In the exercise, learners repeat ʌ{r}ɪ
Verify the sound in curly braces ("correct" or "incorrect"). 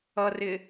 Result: correct